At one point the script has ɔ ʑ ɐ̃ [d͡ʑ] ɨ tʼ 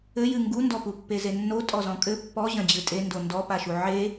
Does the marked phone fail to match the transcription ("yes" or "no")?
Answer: no